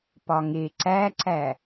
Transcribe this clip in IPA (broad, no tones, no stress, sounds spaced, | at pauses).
p ɒ ŋ e ǀ æ ǀ æ